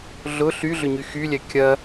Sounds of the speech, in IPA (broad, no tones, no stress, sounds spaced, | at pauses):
ɮ ʊ ɬ y ɮ ʏ ɲ y x y lʲ ɛ kʲ ɐ